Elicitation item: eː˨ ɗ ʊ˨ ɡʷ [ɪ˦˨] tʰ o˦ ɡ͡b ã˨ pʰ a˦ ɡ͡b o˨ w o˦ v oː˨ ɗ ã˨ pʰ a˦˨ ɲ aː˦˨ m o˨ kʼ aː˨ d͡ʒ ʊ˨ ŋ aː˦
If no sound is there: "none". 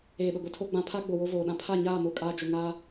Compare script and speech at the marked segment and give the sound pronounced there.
ɪ˨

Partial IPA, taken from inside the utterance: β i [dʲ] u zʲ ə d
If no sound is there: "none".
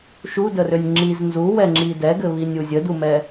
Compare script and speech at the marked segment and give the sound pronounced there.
nʲ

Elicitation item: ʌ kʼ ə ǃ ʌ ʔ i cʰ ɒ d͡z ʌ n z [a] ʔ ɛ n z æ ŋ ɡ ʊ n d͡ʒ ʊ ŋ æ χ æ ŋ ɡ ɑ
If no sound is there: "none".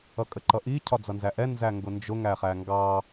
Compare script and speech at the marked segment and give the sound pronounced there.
æ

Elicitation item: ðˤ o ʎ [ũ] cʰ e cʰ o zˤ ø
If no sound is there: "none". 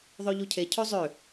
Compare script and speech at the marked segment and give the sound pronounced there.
u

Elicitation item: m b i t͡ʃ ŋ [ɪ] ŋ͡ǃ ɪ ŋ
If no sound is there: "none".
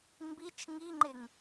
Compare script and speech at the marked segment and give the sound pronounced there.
i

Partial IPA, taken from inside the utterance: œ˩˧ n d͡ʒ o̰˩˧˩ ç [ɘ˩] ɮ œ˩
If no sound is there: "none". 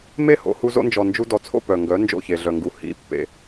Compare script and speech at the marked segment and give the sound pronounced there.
e˩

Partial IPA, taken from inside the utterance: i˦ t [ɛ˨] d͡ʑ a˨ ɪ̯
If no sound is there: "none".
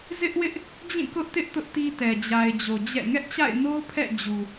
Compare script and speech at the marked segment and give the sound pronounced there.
ɛ˨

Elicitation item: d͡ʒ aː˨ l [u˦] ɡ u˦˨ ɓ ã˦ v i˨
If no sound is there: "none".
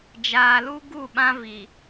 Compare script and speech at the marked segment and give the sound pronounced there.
u˦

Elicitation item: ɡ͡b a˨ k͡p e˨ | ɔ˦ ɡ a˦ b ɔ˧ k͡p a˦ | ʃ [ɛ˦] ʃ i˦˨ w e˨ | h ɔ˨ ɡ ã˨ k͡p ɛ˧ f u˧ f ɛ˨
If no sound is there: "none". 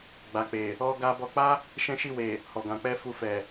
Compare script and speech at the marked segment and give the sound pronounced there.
ɛ̃˦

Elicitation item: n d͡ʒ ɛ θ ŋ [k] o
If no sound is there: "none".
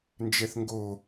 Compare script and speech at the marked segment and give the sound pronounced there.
ɡ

